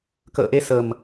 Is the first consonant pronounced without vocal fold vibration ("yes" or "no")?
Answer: yes